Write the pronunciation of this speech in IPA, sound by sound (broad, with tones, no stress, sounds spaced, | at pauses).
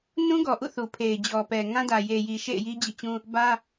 n ũ˦ ɡ ɔ˨ ʔ ṵ˦˨ θ u˨ pʰ e˨ ɪ̯ d͡ʑ ɔ˨ p ɛ˨ ŋ ã˦ d ä˨ j e˨ j i˨ ʃ ḛ˦˨ ɪ̯ j i˦ d͡ʑ ḭ˦˨ t͡ɕ ũ˦ | b ä˦